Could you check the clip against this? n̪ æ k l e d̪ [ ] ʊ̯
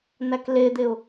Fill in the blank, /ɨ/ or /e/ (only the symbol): e